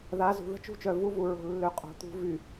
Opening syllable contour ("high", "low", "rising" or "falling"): rising